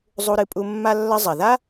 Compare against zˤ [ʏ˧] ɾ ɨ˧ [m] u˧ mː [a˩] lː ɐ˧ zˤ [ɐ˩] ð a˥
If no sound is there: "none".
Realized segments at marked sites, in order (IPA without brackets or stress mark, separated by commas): u˧, pʼ, a˧, ɐ˩